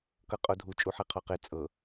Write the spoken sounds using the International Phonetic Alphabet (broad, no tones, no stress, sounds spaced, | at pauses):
k ɤ qʼ o dʱ u t͡ʃʼ u ħ e qʰ ɔ q e t͡sʼ ɤ